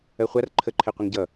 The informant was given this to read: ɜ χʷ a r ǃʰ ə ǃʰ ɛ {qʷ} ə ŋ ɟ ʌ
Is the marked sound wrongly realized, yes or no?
no